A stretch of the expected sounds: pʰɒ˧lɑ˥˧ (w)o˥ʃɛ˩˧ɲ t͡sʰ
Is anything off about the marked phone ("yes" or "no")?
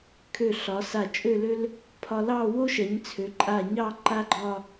no